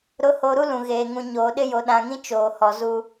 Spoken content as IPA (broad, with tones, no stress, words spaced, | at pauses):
ɾʊ˨˦ho˨ɾu˦ lũ˨ɣeː˨ ŋũ˨ ɲoː˨ɗɪ˦ jo˨ɗã˨ŋĩ˦ t͡ʃoː˨hɔ˨ zuː˦